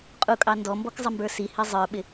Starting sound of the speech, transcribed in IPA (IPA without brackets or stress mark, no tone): qʼ